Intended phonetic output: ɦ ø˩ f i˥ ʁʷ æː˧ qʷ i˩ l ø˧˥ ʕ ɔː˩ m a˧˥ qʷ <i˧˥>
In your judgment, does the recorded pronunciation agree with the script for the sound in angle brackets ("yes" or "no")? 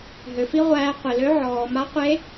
no